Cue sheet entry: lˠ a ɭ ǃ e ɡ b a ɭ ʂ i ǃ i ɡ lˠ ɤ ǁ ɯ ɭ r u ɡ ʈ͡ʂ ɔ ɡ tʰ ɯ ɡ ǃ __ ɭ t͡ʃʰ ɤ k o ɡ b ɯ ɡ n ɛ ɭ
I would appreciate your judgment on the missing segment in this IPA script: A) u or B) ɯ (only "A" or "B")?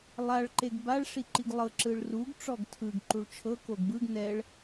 A